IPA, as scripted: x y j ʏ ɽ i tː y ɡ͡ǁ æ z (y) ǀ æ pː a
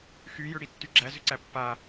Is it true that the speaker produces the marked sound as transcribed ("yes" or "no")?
no